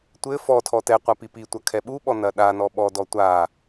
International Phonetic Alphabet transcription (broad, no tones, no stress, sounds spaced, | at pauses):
tʷ ɘ f ɔ tʰ ɔ t ɛ qʷ a p i p i tʷ ɐ kʰ ɛ ɓ u ɓ ɔ n ɐ ɗ a n ɔ ɓ ɔ d ɔ tʷ a